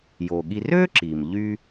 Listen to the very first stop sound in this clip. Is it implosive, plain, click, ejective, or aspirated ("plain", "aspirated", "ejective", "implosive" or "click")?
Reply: implosive